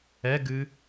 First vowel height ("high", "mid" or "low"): mid